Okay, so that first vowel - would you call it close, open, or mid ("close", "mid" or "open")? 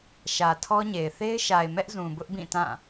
open